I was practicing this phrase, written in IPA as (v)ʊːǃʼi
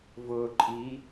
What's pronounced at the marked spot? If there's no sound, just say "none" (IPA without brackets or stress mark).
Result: v